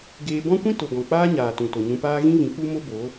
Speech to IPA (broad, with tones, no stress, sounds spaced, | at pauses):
ɡ eː˧ b ɔ̃˦ kʷ ĩ˦ t o˨ ɡ ɔ̃˨ k͡p aː˦ ɲ aː˨ t ũ˨ t o˨ ɲ ũ˧ p aː˦ ɣ ĩ˦ v ĩ˨˦ k͡p u˦ m o˦ b o˨˦